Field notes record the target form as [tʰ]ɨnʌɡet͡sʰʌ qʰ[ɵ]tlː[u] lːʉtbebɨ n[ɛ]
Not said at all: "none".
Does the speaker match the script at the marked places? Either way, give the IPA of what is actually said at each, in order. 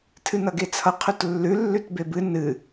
tʰ, ɵ, ʉ, ɨ

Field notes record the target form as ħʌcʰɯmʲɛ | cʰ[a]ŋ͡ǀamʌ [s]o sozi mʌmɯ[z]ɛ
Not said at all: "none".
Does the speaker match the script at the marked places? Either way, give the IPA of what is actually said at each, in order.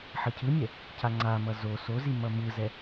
a, z, z

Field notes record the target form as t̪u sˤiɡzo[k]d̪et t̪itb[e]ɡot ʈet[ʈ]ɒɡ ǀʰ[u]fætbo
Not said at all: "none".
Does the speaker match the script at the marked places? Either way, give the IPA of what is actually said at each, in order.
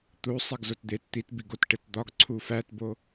t, i, d̪, u

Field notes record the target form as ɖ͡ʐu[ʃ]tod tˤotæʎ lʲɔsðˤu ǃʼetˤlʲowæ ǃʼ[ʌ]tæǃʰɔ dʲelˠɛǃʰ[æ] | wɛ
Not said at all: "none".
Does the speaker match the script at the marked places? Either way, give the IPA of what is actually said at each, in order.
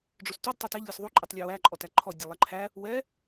s, ɔ, æ

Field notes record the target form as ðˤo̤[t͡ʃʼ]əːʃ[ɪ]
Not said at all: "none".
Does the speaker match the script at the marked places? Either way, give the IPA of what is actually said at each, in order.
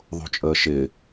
t͡ʃʼ, ɪ

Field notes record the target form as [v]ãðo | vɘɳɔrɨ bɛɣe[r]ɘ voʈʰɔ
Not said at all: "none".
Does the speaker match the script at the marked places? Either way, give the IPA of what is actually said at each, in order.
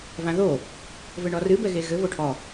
v, ɣ

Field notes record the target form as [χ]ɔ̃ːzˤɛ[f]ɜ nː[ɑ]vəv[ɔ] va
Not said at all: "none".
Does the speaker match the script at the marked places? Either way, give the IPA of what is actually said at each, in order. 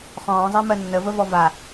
χ, m, ə, ɔ

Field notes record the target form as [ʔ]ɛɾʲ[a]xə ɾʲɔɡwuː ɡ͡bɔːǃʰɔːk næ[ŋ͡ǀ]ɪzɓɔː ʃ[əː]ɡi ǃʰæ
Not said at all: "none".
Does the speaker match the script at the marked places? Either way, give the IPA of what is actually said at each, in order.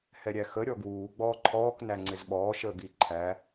h, æ, ŋ͡ǀ, əː

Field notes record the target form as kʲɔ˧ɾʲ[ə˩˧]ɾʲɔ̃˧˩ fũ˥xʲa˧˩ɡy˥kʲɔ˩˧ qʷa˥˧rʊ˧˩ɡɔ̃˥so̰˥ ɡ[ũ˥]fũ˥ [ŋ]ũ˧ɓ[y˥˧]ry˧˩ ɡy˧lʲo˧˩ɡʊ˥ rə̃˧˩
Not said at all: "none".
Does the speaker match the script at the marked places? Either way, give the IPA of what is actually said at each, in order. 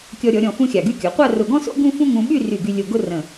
ɔ˩˧, ũ˥, ŋ, y˥˧

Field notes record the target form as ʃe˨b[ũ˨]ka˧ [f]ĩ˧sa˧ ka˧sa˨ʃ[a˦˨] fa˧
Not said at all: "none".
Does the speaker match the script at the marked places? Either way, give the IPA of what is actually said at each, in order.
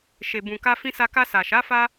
ũ˨, f, a˨˦

